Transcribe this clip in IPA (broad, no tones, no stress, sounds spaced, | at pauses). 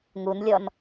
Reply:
ŋ u n lʲ ɔ n